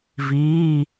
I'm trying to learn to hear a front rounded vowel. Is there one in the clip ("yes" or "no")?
no